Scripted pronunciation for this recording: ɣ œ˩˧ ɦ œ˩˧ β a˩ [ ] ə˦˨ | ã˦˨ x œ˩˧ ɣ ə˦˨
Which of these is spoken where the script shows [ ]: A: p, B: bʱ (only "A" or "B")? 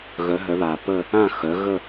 A